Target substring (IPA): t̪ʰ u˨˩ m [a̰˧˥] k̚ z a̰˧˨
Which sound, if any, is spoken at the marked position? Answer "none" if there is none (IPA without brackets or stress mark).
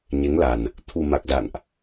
a˨˩